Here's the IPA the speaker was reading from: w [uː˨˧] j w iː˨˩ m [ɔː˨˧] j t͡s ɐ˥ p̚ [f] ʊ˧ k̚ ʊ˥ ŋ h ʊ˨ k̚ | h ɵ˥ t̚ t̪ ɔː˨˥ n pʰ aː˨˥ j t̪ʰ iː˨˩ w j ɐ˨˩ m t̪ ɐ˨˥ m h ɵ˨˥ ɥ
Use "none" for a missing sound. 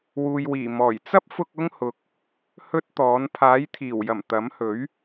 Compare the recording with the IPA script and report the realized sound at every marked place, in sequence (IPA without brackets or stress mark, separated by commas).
uː˨, ɔː˨˩, f